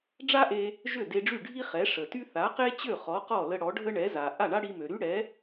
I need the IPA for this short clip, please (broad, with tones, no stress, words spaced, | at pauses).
ɖ͡ʐa˥ʔe˧ | ʒø˥˩de˧ɖ͡ʐy˥˩ɖʱi˥ χɛ˩˥ ʂə˩ty˥ θa˩˥qe˥t͡ɕø˥˩ χɔ˩˥qɔ˥˩lə˧ ɽɔ˩˥ ɖʱə˥ɳɛ˩˥ za˩ ʔa˥˩ɳa˥ɽi˧mø˩ ɾy˥ɽɛ˩˥